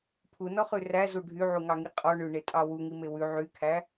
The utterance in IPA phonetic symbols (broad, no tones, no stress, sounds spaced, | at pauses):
pʰ u n ɔ χ ʉ r æ z u ɖʱ y ʕ u ŋ ɑ ŋ i qʼ ɔ ɳ ʉ ɳ e tʼ ɑ w u ŋ i m e w ʉ ʕ y kʰ æ